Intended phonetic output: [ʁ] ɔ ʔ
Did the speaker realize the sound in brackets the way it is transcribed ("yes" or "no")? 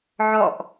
no